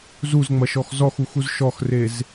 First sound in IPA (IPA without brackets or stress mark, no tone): z